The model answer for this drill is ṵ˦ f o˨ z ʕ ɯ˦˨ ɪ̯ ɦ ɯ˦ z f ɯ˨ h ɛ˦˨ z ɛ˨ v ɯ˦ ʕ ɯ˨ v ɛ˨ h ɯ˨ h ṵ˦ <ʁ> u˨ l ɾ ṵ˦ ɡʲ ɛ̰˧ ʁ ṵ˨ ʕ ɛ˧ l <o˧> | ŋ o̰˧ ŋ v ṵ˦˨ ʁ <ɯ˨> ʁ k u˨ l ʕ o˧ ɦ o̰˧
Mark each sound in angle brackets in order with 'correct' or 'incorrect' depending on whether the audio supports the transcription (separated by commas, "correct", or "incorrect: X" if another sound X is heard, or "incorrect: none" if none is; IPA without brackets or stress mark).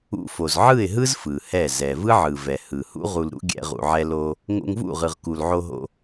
correct, correct, correct